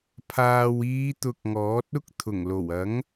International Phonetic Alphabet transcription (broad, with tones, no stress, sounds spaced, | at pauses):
pʰ aː˨ w iː˨˧ t̪ ʊ˧ k̚ ŋ ɔː˨˥ t̚ ʊ˥ k̚ t̪ʰ ʊ˨˩ ŋ l o˨˩ w ɐ˨˥ ŋ